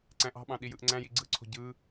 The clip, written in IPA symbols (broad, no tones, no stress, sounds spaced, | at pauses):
ǀ æ̃ ʔ ɑ̤ ɓ ɑ̃ ɗ i j ɯ ʔ ŋ͡ǀ æ̃ j i ɡ͡ǀ ɯ ǀʰ o̤ ɟ ɯ